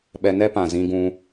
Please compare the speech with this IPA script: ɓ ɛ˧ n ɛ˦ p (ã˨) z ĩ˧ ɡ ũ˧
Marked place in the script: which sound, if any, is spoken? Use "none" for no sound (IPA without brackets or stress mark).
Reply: ã˨